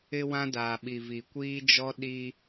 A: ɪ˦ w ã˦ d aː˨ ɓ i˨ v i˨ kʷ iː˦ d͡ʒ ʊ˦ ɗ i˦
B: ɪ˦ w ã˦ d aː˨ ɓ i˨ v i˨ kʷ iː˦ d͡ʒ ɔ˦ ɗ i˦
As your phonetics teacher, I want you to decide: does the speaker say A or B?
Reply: B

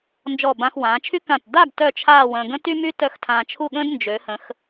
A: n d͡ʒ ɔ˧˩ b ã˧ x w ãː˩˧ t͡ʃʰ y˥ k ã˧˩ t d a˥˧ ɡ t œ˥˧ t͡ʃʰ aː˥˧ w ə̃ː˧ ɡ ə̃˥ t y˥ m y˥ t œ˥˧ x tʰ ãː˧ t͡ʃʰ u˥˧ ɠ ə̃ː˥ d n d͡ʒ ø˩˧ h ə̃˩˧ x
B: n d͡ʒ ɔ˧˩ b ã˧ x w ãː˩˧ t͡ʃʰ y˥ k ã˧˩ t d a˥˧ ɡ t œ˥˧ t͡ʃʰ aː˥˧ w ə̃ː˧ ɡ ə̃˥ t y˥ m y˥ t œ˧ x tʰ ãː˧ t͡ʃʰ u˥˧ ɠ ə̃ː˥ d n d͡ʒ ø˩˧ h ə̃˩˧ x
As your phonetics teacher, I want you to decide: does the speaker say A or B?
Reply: B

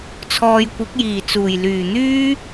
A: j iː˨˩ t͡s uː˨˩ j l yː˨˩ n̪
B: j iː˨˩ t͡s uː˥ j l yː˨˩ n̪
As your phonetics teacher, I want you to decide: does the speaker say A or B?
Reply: A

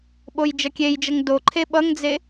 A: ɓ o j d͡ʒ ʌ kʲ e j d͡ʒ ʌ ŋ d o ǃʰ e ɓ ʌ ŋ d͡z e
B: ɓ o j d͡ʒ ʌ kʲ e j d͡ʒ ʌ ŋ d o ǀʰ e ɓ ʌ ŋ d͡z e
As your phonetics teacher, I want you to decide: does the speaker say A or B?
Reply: A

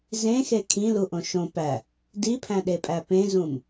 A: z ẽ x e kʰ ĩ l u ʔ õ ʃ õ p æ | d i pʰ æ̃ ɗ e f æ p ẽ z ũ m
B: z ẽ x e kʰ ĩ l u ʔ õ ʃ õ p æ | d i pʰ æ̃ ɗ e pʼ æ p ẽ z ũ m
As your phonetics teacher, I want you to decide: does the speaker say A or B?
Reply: B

